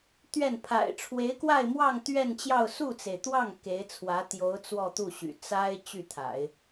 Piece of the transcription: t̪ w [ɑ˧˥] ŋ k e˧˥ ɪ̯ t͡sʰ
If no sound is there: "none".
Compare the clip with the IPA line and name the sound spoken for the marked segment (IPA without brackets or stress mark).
ɑ˥˩